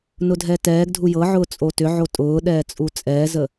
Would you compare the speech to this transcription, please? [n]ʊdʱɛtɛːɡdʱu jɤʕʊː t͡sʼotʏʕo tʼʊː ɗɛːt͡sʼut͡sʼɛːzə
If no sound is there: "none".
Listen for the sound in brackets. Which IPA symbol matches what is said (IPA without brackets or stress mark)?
n